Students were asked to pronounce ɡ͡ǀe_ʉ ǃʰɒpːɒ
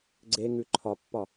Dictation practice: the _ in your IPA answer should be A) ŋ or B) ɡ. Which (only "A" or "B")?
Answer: A